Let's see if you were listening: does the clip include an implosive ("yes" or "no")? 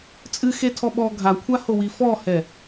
yes